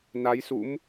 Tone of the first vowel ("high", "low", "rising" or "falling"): rising